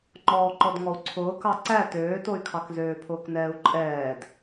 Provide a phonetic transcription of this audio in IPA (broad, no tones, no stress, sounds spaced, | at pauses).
ŋ͡ǃ ɔː ǃ ɔ d ŋ ɔ u̯ ǀʰ ʊː k ɑ ǀ æ t øː t o y̯ kʰ ɑ k z øː pʰ ʊː k n ɛː u̯ ǃʼ ɛː d